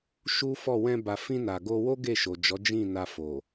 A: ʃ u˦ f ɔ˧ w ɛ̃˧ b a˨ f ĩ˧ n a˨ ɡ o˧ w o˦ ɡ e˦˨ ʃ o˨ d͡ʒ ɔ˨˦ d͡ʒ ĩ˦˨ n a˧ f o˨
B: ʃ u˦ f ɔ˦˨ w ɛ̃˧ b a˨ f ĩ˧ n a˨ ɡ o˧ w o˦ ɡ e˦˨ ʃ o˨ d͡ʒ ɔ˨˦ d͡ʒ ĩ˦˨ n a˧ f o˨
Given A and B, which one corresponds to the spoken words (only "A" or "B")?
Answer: B